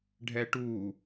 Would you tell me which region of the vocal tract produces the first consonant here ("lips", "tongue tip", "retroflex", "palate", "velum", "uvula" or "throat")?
retroflex